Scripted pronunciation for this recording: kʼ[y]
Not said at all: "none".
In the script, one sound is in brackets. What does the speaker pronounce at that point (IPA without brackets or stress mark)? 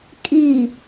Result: i